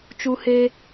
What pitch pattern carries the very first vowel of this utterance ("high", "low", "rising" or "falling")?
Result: high